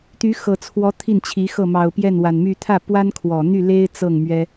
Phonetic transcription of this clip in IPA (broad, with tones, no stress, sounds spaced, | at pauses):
t̪ y˧˥ x ɤ˨˩ t͡sʰ w ɔ˧˥ t̪ʰ i˥˩ n t͡ɕʰ i˧˥ x ɤ˥˩ m ɑ˨˩ ʊ̯ p j ɛ˥˩ n w a˨˩ n m y˥˧ t̪ʰ ä˥˩ p w a˥ n kʰ w ɔ˨˩ n̪ y˥˩ l e˥ ɪ̯ t͡s ɤ˥˩ ŋ m ɥ ɛ˥